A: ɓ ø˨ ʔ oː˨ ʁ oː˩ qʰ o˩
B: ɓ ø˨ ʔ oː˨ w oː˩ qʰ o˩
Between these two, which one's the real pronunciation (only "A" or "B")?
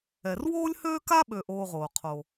A